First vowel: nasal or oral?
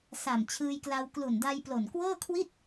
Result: oral